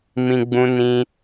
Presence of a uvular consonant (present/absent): absent